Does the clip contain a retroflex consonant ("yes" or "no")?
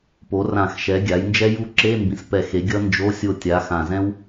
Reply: no